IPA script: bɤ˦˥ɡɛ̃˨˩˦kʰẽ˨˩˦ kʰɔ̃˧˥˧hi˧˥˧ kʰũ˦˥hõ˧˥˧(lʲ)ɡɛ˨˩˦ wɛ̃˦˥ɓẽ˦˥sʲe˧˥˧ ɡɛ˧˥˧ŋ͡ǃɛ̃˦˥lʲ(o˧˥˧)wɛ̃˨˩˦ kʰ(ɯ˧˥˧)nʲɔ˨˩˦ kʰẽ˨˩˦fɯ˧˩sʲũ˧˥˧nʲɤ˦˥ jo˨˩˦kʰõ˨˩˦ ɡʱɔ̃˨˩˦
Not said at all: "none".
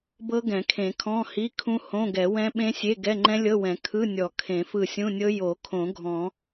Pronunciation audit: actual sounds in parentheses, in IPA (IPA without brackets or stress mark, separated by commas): none, ɤ˧˥˧, ɯ˧˥˧